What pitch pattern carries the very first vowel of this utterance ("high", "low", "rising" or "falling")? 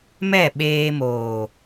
falling